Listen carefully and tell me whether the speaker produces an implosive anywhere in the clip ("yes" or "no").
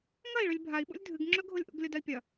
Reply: yes